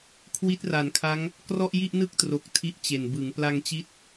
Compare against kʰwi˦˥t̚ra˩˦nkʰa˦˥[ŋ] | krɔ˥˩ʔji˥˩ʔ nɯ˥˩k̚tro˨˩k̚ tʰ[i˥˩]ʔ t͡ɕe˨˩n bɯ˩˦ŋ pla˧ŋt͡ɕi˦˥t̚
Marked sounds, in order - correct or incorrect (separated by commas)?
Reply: correct, correct